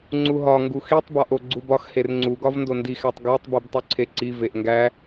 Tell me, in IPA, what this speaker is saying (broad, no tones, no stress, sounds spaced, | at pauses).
ŋ͡ǀ u ɦ ɒ ŋ ɡ u x i tˤ b ɒ ʔ o ɡ͡ǀ u b ɒ x h e r ŋ͡ǀ u ɡ ɒ v n d o n d i x æ tˤ ɡ æ tˤ b i b tˤ u ǀʰ e ǀ i v e ʔ ŋ ɡ æ